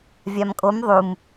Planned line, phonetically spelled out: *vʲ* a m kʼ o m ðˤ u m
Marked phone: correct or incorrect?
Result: correct